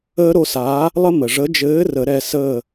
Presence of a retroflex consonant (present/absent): present